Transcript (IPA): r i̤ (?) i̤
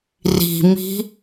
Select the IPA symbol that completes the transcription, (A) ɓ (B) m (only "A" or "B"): B